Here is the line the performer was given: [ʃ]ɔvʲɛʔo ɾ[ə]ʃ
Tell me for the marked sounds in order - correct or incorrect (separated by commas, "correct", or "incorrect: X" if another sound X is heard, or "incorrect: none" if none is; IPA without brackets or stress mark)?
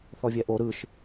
incorrect: θ, incorrect: ɯ